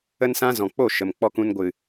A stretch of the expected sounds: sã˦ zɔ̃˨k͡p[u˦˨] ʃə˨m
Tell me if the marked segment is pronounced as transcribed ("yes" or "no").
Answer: no